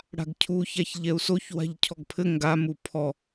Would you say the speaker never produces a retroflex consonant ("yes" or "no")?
no